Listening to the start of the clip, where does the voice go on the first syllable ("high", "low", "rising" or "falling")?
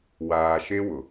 low